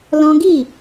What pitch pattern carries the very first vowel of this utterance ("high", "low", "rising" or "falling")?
high